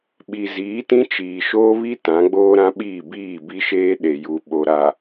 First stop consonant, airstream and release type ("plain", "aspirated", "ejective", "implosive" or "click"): implosive